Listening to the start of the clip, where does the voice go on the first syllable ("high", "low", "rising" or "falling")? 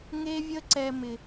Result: high